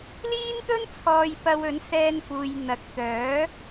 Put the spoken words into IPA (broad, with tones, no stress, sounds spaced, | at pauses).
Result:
l iː˥ n t̪ ɵ˥ n t͡sʰ ɔː˨ j p ɐ˧ w ɵ˨˥ n s ɛː˧ n f uː˨ j n̪ ɐ˨ k̚ t̪ œː˨˥